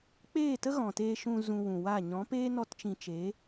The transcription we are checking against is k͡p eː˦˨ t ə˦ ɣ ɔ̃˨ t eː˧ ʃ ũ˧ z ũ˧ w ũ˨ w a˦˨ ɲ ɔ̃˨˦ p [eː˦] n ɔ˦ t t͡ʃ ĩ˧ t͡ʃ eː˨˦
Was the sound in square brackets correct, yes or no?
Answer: yes